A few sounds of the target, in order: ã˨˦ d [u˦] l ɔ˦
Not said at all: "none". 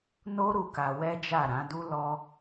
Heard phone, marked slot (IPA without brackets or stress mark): u˦